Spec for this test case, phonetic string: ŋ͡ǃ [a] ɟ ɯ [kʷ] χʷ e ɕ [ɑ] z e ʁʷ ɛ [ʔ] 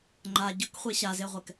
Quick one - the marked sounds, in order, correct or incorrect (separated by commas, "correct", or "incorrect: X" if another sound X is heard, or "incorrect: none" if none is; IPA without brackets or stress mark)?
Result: correct, incorrect: k, incorrect: a, incorrect: k